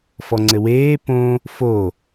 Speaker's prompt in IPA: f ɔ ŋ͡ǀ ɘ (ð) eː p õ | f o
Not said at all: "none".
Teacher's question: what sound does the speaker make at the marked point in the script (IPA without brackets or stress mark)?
w